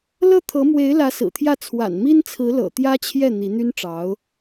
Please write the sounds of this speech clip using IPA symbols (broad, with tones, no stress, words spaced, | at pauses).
lɤ˥˩t̪ʰɤ˧˥mwe˧˥ɪ̯lä˧˥ sɹ̩˨˩t̪ʰjä˥˩ t͡sʰwa̰˨˩nmi˥nt͡sʰɹ̩˧˥lɤ̰˨˩ t̪jä˥t͡ɕʰjɛ˥˩ n̪i˧˥n̪y˥nʈ͡ʂɑ˧˥ʊ̯